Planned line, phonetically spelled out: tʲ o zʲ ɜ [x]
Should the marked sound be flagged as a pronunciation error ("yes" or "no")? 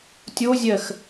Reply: no